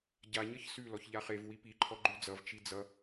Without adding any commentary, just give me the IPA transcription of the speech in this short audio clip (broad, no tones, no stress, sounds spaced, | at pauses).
ɟ a ɲ ʌ ç s ʉ l ɔ ç ʎ a χ e v w i p i ǃʰ ɔ ɡ͡ǃ ʉ d͡z ʌ v t͡ʃ i d͡z ʌ